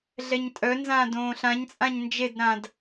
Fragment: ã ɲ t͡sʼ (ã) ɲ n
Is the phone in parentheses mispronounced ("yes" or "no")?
no